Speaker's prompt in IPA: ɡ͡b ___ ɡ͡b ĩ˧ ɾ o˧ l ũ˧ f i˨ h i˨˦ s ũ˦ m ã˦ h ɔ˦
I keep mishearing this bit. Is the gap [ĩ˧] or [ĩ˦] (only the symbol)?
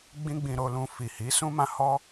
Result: ĩ˦